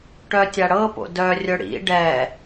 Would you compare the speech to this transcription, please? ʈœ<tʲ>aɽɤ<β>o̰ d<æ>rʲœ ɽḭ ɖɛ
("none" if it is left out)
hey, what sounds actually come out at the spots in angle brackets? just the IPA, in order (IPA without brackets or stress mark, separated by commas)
tʲ, p, œ